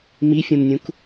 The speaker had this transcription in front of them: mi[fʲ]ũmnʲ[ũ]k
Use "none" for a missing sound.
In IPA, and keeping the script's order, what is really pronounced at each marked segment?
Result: fʲ, ũ

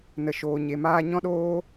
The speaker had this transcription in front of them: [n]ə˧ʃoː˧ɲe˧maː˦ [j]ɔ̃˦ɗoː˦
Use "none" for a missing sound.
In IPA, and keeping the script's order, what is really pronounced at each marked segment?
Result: n, ɲ

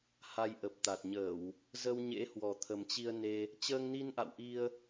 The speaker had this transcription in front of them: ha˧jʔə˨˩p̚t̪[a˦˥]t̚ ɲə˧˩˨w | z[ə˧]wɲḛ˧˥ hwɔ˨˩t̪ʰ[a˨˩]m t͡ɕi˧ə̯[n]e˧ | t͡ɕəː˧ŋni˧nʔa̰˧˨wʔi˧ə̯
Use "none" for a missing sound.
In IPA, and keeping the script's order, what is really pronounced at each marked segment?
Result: a˨˩, ə˧, ə˨˩, n

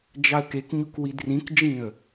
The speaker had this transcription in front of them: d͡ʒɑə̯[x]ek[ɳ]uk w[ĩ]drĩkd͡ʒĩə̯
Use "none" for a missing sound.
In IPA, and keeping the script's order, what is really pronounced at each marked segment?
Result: k, ɲ, i

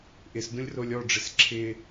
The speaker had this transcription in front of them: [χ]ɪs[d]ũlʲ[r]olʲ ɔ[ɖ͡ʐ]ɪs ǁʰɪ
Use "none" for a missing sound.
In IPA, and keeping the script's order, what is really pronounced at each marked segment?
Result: ʔ, d, r, ɖ͡ʐ

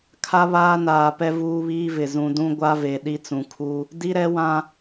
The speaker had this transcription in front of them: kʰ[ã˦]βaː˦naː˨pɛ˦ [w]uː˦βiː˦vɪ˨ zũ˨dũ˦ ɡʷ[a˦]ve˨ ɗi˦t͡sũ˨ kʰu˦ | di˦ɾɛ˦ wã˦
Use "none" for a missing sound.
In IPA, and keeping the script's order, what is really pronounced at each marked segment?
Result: a˦, v, a˦

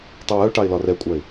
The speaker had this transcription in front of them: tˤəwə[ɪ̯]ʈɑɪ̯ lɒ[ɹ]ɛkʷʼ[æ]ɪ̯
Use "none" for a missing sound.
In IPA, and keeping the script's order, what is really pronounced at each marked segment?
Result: ʊ̯, r, æ

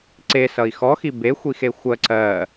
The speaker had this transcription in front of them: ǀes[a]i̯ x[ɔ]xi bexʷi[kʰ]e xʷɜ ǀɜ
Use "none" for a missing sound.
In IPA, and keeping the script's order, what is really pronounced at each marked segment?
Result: ʌ, ɔ, x

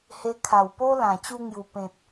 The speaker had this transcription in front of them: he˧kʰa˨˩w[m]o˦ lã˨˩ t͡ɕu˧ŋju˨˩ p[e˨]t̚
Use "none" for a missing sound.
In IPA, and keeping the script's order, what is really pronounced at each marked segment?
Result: p, ẽ˨

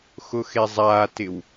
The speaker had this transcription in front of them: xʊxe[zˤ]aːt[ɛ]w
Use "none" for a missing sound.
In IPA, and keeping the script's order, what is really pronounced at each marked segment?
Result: zˤ, ɪ

